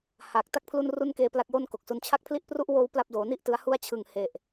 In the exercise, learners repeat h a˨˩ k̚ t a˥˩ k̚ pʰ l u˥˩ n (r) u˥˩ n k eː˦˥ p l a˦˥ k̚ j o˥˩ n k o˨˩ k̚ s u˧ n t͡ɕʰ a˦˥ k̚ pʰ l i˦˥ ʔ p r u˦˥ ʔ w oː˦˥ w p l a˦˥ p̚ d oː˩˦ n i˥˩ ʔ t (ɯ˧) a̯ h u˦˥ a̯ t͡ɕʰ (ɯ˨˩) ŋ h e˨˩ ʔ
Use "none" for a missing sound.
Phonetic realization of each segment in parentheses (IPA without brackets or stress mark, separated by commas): r, ɯ˧, ɯ˨˩